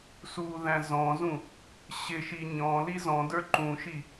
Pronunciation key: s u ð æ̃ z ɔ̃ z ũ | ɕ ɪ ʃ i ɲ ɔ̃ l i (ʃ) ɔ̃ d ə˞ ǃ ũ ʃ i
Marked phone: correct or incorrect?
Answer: incorrect